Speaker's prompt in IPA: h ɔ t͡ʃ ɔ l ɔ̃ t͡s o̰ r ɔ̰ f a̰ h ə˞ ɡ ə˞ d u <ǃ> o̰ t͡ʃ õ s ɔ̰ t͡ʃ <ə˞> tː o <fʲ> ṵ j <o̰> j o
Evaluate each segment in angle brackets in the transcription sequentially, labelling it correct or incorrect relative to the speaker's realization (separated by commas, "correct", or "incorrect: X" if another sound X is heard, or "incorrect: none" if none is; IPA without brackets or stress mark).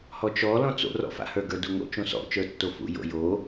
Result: incorrect: ŋ, correct, incorrect: f, correct